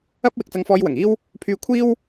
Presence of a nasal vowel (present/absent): absent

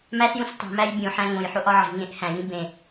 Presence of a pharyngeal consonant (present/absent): present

